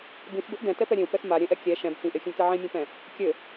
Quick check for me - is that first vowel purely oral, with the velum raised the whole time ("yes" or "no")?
no